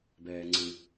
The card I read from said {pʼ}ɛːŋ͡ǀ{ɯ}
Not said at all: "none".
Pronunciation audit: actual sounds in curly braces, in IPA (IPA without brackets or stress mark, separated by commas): b, ɯ